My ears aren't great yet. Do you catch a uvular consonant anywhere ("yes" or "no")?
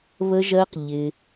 yes